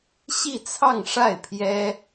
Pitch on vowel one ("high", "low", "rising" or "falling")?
falling